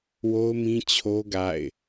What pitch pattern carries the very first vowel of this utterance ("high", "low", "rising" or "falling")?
high